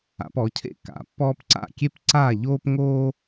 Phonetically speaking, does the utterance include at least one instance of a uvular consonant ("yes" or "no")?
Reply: no